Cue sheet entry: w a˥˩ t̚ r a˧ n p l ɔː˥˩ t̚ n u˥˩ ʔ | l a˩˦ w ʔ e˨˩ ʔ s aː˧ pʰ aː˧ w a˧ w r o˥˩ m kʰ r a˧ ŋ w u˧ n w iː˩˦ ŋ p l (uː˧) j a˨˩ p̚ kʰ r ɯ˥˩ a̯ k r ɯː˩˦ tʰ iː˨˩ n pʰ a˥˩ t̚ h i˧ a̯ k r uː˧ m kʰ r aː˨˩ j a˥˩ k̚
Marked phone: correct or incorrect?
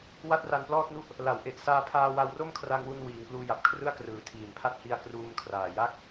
correct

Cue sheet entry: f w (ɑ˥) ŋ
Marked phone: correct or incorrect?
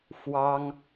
correct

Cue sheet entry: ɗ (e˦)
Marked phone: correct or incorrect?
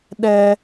incorrect: ɛ˦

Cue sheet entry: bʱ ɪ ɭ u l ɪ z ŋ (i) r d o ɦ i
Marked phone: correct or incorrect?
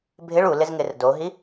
incorrect: ɪ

